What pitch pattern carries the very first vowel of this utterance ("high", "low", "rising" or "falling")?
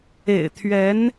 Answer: low